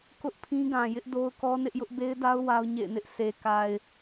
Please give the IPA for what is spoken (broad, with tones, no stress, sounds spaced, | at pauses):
k ʊ˦ ʔ pʰ ĩ˦ ɡ ã˨ j ɪ˦ ʔ d o˦ ʊ̯ k ɔ˦ n ɪ˦ ʔ j ʊ˦ ʔ b e˦ ɪ̯ d a˦ ʊ̯ w a˦ ʊ̯ ɲ ḛ˦˨ ɪ̯ n ɪ˦ ʔ s e˨ k a˨ ɪ̯